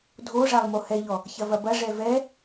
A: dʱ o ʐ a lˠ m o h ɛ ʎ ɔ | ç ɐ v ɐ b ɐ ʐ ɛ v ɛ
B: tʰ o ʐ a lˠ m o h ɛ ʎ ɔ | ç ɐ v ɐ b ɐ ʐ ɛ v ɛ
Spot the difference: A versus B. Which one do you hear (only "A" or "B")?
A